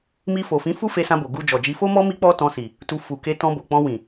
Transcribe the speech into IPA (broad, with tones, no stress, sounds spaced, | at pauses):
m i˧ f o˨ f ĩ˨˦ f u˦ f e˧ s ã˧ b o˨ ɡ u˧ d͡ʒ ɔ˨ d͡ʒ i˧ f o˦ m ɔ˦ m i˦ k͡p ɔ˦ t ɔ̃˧ s i˨ | t u˧ f u˨ k e˧ t ɔ̃˧ b o˨ k͡p ɔ̃˧ w ĩ˨